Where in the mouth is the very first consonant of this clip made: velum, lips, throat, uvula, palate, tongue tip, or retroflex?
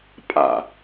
lips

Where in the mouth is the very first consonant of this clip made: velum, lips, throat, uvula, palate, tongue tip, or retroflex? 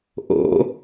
throat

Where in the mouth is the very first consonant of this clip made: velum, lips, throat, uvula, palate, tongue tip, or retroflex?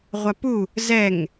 uvula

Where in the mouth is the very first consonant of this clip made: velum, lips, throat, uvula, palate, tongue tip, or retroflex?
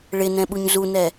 retroflex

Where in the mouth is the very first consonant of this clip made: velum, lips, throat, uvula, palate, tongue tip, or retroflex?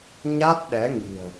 palate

